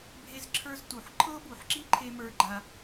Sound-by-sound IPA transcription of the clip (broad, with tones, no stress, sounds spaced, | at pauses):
bʱ e˧ z ǁʰ ə˞˧ z t u˨ ħ ǃʰ ɤ˦ b u˨ ħ ǁ i˦ ǃʰ e˧ m ə˞˧ ɡ͡ǃ a˧